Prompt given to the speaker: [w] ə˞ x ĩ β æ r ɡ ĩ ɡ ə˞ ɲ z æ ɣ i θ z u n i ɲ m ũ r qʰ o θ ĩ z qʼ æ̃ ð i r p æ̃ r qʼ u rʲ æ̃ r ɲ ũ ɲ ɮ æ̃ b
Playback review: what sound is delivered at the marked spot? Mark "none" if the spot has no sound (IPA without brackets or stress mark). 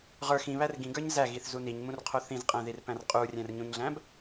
ʁ